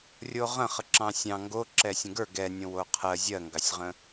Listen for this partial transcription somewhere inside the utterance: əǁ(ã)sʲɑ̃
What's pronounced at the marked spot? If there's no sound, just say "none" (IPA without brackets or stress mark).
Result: ɑ̃